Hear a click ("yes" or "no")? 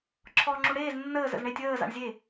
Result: yes